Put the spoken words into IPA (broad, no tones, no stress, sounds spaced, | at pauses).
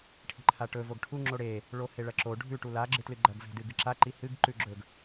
ʈʰ i̤ ǃʰ a ʈ ɵ v o ɡ ʈʰ u ŋ͡ǁ o ɽ e | ɭ o h e ɭ ɐ ǁ o ɖʱ ʉ ʈ u l a ɡ͡ǁ ɨ t l ɨ ɡ͡ǃ ɐ ɡ v e̤ d ɨ ɡ ɨ ǁ a ǃ i h ɨ ɡ ǃ ʉ ɡ͡ǁ ɵ ɡ